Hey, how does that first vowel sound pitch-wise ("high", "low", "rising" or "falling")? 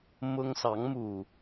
high